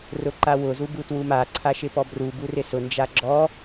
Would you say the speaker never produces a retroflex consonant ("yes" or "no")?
yes